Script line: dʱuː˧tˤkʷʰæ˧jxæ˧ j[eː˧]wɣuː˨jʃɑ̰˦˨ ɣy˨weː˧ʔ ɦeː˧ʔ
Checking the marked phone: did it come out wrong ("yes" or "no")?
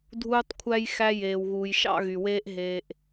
yes